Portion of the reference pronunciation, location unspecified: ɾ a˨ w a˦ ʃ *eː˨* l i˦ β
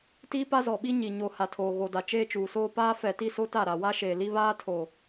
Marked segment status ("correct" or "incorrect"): correct